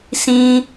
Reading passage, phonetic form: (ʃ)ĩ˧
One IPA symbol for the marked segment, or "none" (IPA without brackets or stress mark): s